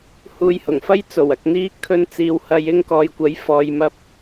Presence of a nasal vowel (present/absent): absent